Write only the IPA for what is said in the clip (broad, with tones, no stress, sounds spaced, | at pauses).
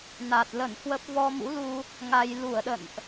n a˨˩ t̚ l ə˧˩ n h w ə˦˥ p̚ v ɔ˧ m ṵ˧˥ l u˧ | ŋ a˧ j l u˧˩ ə̯ ɗ ə̰˧˨ n ʔ